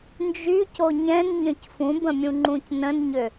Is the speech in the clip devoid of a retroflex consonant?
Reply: yes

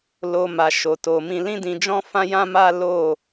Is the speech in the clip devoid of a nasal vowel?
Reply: no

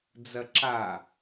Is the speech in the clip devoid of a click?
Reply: no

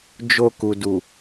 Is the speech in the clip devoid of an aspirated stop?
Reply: yes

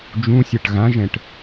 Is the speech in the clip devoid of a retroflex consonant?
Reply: no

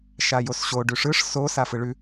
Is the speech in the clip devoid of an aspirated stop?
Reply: yes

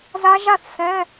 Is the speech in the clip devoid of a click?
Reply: yes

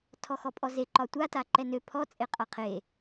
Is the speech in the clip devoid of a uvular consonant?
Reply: no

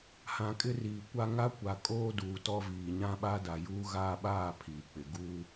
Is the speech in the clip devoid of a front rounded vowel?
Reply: yes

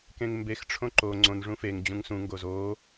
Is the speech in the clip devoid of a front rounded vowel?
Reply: yes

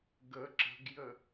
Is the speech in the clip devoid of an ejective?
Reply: yes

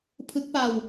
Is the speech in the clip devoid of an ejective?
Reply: yes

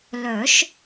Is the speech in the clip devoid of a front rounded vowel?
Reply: no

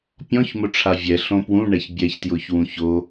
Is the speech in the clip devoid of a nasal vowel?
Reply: no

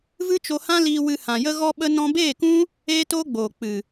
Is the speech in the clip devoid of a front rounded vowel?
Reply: yes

